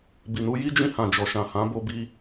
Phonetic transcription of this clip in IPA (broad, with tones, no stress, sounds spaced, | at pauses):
b i˨ n u˧ j i˦ d͡ʒ ĩ˧ h ã˨ d͡ʒ ɔ˨ ʃ ã˨ h ã˨˦ b o˧ b i˧